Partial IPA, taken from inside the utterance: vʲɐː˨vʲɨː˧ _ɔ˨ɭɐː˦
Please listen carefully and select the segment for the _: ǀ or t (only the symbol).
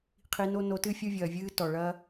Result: t